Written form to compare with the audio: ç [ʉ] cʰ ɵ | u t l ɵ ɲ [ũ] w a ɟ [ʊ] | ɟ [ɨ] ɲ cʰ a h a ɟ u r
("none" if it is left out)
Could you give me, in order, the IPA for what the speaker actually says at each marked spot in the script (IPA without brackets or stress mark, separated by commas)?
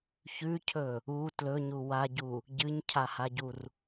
ʉ, u, u, ɨ